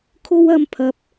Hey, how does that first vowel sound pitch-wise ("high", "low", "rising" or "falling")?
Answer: high